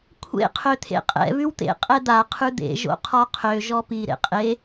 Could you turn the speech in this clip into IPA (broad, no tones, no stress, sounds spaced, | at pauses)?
kʷʰ ḛ qʰ ø t̪ʰ ḛ qʼ ɛ̰ β ʉ w t̪ ḛ qʼ ɛ d̪ a qʰ ʉ d̪ ḛ ʒ o̰ qʰ ɔ qʰ ø ʒ ɔ p i ɾ ḛ qʼ e